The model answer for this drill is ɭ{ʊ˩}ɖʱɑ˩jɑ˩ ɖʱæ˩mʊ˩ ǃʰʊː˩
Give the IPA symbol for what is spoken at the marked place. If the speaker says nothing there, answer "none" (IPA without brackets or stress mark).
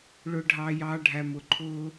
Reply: ʊ˩